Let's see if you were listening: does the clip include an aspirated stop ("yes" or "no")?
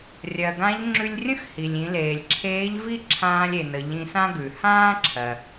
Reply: yes